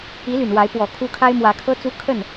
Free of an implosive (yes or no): yes